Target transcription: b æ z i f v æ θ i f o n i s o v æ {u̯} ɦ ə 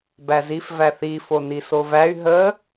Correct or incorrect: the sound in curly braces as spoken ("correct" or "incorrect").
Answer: incorrect